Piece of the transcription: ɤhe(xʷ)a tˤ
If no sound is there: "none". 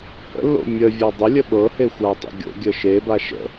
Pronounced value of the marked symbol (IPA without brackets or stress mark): xʷ